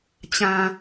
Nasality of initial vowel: nasal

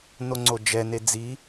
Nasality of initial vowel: oral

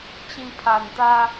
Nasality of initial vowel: nasal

